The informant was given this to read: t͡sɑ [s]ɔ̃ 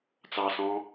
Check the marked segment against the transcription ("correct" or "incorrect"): correct